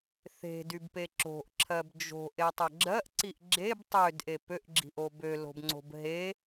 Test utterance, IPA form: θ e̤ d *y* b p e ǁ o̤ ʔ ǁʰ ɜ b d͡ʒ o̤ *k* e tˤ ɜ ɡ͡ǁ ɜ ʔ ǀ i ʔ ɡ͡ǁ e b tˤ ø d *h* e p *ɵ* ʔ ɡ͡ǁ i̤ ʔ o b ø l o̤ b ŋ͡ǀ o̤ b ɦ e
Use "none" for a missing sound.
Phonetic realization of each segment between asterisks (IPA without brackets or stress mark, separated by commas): y, ʔ, ʔ, ø